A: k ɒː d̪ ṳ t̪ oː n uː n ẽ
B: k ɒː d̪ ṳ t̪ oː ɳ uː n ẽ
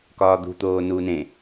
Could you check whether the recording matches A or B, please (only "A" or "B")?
A